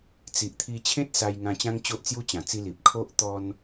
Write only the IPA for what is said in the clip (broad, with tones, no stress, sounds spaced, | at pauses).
t͡s i˨ ʔ t̪ʰ i˧ t͡ɕʰ ẽ˦ t̚ s a˧ j ŋ ã˧ t͡ɕ ã˦ ŋ t͡ɕ o˦ ʔ t͡s j u˦ t͡ɕ ã˨˩ t͡s i˧ l i˨ p̚ kʰ o˦ ʔ t̪ ɔ˦ n